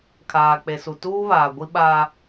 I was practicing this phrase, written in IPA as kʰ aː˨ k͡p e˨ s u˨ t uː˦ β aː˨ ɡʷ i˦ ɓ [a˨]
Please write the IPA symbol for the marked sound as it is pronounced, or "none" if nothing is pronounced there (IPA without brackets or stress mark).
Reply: a˦